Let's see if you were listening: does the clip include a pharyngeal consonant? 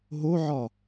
yes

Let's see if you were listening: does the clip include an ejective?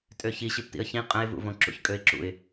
yes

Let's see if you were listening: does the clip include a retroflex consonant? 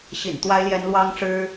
yes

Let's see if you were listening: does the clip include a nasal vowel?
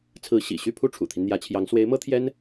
no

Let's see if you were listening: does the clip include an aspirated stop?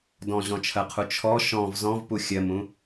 yes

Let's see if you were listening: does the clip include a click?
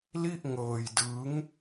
no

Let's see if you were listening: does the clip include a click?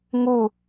no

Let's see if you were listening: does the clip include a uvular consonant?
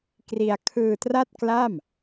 no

